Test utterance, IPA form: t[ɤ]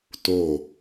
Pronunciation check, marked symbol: incorrect: o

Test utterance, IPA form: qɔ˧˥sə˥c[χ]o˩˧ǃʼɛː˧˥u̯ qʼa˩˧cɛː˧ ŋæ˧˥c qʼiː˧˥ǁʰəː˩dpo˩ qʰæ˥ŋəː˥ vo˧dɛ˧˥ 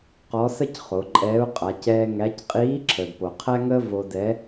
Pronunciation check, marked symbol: correct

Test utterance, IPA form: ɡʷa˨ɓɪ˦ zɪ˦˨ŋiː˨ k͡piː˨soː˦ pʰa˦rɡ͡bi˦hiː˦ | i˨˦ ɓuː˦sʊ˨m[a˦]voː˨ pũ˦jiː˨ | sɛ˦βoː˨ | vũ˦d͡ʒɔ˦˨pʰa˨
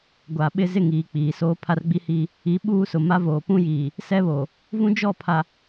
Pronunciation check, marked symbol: correct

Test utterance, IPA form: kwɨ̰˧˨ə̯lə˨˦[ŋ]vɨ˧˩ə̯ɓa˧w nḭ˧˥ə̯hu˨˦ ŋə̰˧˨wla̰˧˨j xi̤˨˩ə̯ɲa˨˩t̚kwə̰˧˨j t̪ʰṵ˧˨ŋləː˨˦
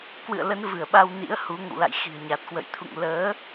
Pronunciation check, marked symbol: incorrect: n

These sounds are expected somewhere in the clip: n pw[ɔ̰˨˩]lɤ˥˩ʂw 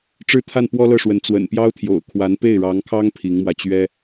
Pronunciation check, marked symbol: incorrect: ɔ˥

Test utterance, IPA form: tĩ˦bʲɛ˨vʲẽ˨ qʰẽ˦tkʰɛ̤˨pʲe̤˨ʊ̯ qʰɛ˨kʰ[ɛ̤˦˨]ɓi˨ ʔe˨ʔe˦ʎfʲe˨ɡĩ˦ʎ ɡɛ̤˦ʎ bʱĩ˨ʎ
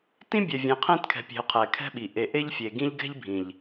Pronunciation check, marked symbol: incorrect: ɛ̤˦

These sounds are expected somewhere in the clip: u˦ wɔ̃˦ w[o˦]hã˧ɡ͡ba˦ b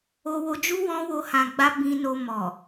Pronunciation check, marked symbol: correct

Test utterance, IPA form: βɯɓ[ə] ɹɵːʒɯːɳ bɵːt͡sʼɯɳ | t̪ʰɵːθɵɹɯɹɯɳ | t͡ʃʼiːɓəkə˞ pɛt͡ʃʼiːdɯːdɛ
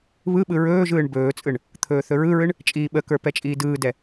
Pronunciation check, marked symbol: incorrect: ɯ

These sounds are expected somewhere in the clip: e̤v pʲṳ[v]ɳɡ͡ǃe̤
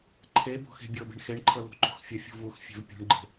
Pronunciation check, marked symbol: incorrect: none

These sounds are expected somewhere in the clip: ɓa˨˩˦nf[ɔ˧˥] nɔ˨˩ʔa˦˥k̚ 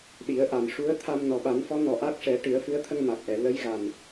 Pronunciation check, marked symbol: correct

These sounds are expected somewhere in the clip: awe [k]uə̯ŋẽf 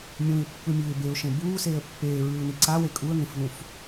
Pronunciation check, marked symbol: incorrect: kʼ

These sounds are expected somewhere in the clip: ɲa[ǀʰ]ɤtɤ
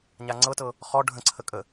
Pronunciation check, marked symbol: incorrect: ŋ͡ǀ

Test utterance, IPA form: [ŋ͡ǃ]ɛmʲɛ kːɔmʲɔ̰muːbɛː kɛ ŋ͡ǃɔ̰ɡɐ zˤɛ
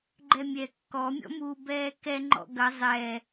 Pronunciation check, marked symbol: incorrect: ɡ͡ǃ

